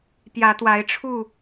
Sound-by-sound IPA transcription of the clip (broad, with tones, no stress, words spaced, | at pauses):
pjä˨˦t̪wa˨˦ɪ̯ʈ͡ʂʰu˥˨